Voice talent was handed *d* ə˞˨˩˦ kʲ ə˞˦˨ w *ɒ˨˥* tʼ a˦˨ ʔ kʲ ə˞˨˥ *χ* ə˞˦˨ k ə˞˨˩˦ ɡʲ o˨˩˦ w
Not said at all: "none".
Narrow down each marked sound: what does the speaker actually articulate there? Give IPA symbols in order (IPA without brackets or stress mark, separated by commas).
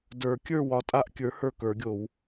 d, ɒ˨˥, h